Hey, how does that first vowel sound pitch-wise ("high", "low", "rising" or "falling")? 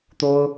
high